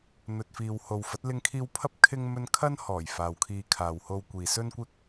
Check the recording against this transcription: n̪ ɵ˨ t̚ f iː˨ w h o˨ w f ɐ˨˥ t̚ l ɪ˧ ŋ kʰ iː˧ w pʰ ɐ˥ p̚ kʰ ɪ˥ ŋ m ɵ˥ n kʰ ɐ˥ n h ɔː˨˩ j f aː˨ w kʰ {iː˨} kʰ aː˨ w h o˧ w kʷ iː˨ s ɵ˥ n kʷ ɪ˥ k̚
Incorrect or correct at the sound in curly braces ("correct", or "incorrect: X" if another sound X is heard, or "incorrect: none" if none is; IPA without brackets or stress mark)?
incorrect: iː˧